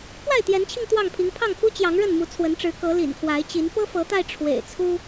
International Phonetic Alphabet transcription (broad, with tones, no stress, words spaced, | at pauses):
pwa˥˨ɪ̯t̪jɛ˨˦nt͡ɕʰi˧ŋ t̪wɑ˥˨ŋpʰi˨˦ŋ pʰɑ˥˨ŋpʰu˦ t͡ɕjɑ˨˦ŋɻə˥˨nmu˨˦ t͡sʰwə˨˦nʈ͡ʂɻ̩˨˦ kɤ˨˦lḭ˨˩nkʰwa˨˦ɪ̯t͡ɕi˨˦n pɤ˦fɤ˨˦t̪a˧ɪ̯ ʈ͡ʂʰwḛ˨˩ɪ̯t͡sʰu˦